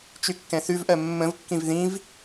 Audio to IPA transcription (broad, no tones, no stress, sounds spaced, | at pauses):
t͡ʃ y kː ɛ̃ θ ʉ v ʔ ɜ mː ə̃ v kː ĩ v ð ĩ v